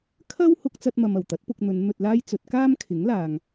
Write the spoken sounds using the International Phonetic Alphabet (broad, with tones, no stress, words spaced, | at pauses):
kʰɐ˥w hʊ˧k̚t͡sɐ˧t̚mɐ˨m ɐ˨˩wt̪ɐ˨˥t̚pʊ˧k̚n̪ɵ˨˧n n̪ɵ˧t̚laː˥jt͡sɵ˨˥t̚ kaː˥mkʰɪ˨˥ŋlaː˨ŋ